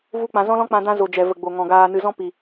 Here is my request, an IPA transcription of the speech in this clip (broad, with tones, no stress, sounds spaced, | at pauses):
v u˦ k͡p ã˧ z ɔ̃˦ l ɔ̃˦ k͡p ã˧ d ã˧ z o˨ d͡ʒ ɛ˨ v ə˨ ɡ͡b o˨ ŋ ɔ̃˨ ɡ aː˨ n ɨ˨ z ɔ̃˧ p i˨